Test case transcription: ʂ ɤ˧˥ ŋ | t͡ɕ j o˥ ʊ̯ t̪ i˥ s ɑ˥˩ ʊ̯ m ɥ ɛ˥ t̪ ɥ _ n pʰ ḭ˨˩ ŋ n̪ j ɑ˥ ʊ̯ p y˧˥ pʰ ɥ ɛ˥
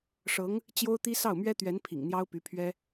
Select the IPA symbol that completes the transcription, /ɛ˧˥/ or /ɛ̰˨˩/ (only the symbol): ɛ˧˥